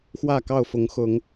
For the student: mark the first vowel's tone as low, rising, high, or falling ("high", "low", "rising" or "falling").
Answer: falling